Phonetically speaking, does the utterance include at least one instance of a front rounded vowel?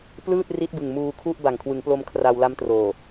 no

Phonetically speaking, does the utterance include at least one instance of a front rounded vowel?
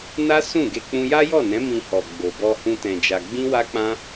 no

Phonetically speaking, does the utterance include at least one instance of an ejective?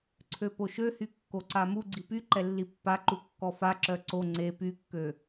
no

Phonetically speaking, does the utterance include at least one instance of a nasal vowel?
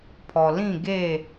yes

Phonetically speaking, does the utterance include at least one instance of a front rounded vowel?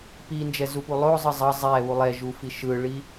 no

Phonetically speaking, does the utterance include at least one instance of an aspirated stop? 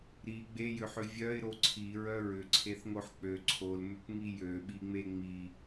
yes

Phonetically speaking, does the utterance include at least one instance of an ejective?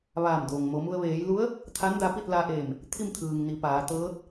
no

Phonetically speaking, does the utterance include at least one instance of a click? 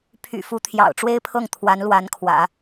no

